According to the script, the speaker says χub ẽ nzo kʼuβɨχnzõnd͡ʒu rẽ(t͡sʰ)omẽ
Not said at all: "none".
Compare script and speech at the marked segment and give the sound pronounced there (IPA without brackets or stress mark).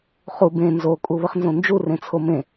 t͡sʰ